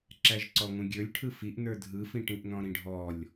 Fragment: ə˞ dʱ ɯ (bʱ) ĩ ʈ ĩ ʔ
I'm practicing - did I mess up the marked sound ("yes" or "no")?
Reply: yes